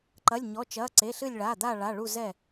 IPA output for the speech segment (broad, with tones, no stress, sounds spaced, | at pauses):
ǃ ɐ˩˧˩ lʲ ɲ ɔ˩˧˩ t͡ʃ ɐː˩˧˩ ǀ e˩˧˩ ɬ ɨ˧˩ lʲ ɭ aː˩˧˩ d̪ a˧˩ ɭ a˩˧˩ ɭ u˧˩ z ɛ˧˩